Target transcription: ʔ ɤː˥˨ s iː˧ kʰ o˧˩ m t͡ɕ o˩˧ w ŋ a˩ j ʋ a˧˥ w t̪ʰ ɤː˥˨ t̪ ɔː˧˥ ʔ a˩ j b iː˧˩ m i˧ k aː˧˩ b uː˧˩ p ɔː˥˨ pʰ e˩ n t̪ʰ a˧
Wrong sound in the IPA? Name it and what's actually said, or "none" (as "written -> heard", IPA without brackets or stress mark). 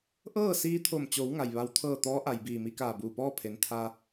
kʰ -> t̪ʰ